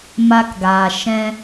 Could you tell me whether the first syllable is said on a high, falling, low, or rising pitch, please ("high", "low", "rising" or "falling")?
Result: high